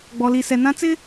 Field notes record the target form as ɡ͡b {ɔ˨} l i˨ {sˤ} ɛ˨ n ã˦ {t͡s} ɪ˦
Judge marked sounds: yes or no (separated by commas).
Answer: yes, no, yes